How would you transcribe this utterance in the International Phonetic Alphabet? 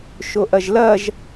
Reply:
ʃ o ʔ ɐ ʒ l ɐ ʒ

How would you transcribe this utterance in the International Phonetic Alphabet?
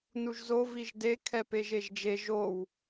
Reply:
n u ʒ z o v i ʒ d e kʰ ɛ p e ʒ e ʒ d͡ʒ e ʒ o w

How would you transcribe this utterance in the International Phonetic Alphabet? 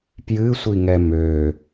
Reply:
p j ɨ sʷ i ŋ ɛ m ø

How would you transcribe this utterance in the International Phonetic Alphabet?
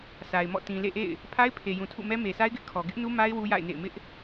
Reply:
sʰ a˨ ɪ̯ m ɔ̰˦˨ t ĩ˨ l ḛ˦˨ ʔ ḛ˦˨ ɪ̯ | pʰ a˦ ɪ̯ pʰ e˨ j ũ˨ tʰ ṵ˦˨ m ɛ˦ m e˨ sʰ a˦ ɪ̯ ɡ ɪ˦ ʔ kʰ ɔ˨ ɡ ɪ˦ ʔ n u˦ m a˦ ɪ̯ w u˦ j a̰˦˨ ɪ̯ n ḛ˦˨ ɪ̯ m ɪ˦ ʔ

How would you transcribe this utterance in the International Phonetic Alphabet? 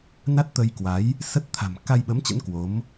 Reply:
n a˦˥ t̚ t̪ ə˧ j k w a˨˦ j | s ə˦˥ t̚ t̪ʰ a̤˨˩ m k a˧ j ɓ ə˨˦ m t͡ɕ ə̰˧˥ n k w o˨˦ m

